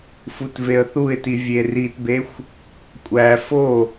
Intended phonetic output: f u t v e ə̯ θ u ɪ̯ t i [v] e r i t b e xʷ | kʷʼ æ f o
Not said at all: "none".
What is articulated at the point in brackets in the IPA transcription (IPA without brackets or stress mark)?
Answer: vʲ